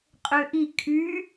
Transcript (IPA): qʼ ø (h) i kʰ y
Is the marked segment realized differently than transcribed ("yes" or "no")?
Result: yes